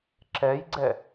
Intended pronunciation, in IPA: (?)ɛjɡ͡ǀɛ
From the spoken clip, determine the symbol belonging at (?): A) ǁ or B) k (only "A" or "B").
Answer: A